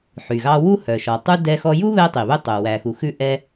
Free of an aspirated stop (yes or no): yes